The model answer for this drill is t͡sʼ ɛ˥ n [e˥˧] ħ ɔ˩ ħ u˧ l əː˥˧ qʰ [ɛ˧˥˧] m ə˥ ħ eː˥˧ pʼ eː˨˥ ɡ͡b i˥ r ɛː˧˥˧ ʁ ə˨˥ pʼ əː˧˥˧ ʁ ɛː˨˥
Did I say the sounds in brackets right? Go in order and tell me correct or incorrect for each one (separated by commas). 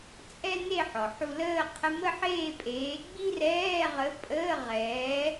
correct, incorrect